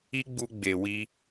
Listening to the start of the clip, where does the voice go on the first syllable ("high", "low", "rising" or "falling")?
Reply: high